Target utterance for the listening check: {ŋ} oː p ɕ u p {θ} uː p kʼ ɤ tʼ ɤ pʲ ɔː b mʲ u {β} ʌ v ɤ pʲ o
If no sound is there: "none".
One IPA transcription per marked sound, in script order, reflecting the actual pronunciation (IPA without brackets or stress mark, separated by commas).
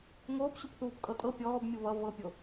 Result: ŋ, θ, β